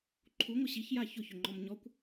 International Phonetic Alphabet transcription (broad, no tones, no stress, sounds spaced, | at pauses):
ǃʰ u ŋʷ ɪ ɕ i ç j a ç ʊ ç ʏ ŋ͡ǃ ɔ m ɲ ɔ kʷ